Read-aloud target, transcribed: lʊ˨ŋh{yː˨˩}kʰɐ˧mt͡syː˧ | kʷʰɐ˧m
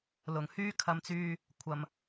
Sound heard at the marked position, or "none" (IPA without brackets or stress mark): yː˥